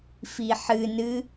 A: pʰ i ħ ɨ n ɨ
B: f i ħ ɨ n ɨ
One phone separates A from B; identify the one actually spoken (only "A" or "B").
B